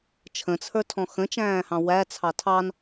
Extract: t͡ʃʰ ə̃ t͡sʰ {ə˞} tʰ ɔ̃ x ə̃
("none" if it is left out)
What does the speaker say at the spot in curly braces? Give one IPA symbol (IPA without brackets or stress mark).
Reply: ə˞